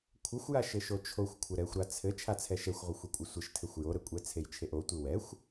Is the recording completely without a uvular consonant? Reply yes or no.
no